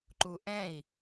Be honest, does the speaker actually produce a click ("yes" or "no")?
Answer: yes